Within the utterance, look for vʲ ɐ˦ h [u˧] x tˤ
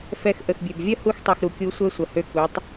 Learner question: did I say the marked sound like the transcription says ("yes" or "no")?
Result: yes